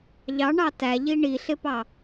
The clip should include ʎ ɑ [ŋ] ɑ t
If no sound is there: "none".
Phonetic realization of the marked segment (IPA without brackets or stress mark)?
ɳ